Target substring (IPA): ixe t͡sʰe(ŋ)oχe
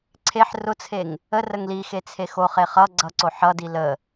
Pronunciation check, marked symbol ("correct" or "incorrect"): incorrect